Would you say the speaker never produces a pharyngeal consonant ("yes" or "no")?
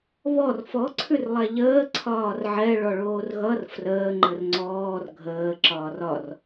no